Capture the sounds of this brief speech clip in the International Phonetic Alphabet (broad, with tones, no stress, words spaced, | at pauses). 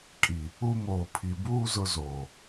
kʼi˨ | u˦ moː˨pʰi˨buː˦ zʊ˦zoː˨